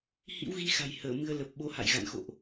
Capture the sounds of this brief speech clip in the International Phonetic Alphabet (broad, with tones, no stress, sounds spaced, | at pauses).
h ḭ˧˥ w ɣ i˧ x a̤˨˩ j h əː˧˩ m ɨ˧ ə̯ l ə˨˩ p̚ ɓ o˨˦ h a̰˧˨ j ɣ a̰˧˨ n x o̰˧˨ ʔ